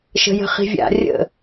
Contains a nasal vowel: no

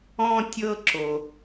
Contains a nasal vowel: yes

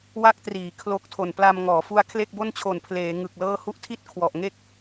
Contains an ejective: no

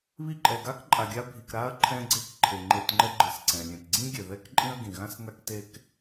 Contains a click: yes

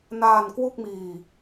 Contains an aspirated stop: no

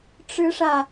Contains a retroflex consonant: yes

